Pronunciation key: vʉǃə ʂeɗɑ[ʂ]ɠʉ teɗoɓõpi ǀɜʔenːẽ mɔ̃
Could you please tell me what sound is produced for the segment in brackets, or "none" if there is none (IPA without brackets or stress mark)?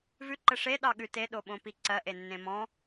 none